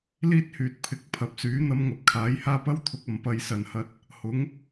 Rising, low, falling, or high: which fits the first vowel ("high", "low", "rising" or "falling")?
high